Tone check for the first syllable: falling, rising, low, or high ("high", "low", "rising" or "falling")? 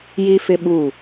high